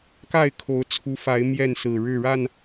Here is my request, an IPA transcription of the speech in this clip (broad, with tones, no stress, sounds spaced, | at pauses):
k a˥˨ ɪ̯ kʰ o˨˦ ʊ̯ t͡sʰ u˨˦ f a˨˦ ɪ̯ m j ɛ˥˨ n s ɹ̩˨˩ ɻ ɻ̩˥˨ ɻ a˥˨ n